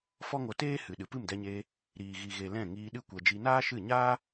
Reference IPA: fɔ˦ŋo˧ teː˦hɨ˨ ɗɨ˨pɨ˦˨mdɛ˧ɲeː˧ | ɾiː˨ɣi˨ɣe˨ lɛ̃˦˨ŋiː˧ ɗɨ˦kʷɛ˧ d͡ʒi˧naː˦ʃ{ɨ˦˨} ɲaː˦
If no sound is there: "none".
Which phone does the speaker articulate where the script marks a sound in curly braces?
ɨ˦˨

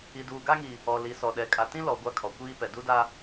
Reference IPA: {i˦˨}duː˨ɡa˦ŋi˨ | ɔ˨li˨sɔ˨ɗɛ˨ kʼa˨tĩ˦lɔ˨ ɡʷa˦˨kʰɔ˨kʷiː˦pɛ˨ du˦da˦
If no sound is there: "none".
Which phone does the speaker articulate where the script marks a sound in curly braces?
i˨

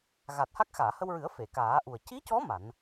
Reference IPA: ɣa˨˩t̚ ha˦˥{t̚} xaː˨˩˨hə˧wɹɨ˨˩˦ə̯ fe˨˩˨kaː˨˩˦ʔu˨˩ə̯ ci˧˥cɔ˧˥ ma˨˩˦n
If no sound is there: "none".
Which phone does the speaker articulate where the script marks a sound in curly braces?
k̚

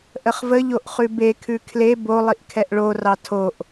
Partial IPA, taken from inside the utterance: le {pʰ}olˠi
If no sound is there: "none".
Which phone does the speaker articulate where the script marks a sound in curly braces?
b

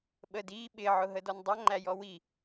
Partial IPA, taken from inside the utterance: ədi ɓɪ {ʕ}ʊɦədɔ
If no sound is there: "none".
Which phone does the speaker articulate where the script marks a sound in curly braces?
ʕ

